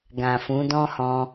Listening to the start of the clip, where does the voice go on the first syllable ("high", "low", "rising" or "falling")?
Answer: low